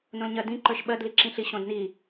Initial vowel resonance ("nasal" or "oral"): nasal